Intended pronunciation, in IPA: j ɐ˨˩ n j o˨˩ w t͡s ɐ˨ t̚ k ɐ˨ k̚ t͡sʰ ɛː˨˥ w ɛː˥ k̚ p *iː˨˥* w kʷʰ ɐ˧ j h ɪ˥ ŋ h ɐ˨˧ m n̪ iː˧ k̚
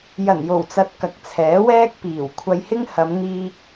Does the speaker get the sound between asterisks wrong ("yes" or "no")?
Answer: yes